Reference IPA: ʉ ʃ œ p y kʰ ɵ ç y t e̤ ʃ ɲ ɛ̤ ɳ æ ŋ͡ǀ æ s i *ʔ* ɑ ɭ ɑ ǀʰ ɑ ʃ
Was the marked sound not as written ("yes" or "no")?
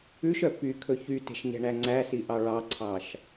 no